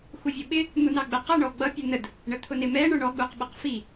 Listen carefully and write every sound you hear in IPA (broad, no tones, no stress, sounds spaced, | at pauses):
x u vʲ ʊ ɓ ɪ | n̪ u n ɑ ɡ͡b ɛ q ʌ ɳ ɔ ɡ͡b ʌ pʲ ʌ n ə d | ɳ ə t̪ʰ ʊ n ɪ m ɛ ɳ ə˞ ɳ ɔ ɡ͡b u q ɓ ʌ q f i